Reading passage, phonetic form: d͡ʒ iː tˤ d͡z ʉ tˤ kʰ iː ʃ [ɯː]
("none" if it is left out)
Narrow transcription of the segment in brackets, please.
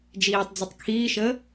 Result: əː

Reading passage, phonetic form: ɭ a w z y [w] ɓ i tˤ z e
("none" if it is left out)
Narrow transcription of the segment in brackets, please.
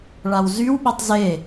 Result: w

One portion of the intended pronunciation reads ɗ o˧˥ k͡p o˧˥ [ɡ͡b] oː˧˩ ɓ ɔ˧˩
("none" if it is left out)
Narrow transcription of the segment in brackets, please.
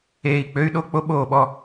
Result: ɓ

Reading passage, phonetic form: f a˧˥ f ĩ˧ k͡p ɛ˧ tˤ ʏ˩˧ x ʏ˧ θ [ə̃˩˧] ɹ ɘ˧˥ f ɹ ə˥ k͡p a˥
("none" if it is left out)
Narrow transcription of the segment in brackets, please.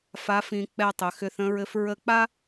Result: ə̃˧˥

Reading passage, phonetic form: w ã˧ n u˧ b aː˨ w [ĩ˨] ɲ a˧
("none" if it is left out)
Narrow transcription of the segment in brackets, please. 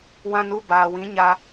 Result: ĩ˨˦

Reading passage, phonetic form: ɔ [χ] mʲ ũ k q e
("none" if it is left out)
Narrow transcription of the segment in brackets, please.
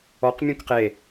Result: q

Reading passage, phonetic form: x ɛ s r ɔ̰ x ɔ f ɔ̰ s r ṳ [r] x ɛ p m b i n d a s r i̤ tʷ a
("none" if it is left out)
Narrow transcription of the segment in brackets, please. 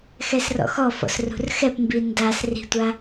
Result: r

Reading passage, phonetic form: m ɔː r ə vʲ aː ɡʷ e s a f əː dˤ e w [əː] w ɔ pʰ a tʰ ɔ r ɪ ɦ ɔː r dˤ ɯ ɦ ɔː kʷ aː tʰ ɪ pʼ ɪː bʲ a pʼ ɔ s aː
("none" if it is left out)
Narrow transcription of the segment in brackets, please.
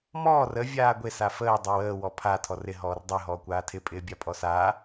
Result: əː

